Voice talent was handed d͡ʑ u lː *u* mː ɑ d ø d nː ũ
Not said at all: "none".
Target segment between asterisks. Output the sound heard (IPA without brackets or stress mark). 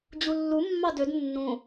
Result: u